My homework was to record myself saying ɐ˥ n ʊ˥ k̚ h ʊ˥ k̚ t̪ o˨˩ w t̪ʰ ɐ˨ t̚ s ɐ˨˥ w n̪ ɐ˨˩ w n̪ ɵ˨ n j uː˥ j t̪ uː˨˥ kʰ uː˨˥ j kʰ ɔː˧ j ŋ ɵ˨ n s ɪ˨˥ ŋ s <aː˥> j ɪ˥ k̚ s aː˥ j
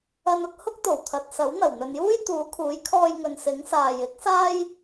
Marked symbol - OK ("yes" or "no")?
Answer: no